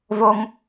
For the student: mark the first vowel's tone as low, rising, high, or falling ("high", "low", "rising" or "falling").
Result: low